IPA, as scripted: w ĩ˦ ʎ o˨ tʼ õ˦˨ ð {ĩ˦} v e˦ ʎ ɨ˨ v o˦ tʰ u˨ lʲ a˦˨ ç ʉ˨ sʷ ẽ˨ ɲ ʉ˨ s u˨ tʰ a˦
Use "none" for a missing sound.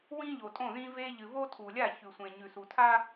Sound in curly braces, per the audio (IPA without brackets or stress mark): ĩ˦